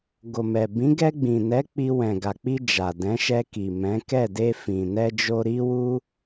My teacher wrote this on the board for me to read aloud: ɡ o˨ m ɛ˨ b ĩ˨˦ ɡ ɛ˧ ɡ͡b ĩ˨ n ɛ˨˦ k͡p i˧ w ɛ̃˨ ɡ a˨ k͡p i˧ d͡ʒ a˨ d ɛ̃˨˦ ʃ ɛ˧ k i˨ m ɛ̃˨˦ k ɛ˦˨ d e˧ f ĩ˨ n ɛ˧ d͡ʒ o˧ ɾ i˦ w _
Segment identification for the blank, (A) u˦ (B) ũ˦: A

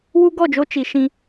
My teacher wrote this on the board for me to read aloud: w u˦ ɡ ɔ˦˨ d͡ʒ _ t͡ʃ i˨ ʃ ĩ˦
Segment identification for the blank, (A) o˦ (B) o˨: A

